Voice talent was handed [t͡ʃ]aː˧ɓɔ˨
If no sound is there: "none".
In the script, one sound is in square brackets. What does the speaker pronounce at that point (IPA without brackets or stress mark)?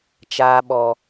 t͡ʃ